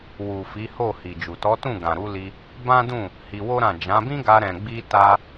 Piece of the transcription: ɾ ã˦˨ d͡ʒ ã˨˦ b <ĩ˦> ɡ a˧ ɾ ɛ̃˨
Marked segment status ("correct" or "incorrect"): correct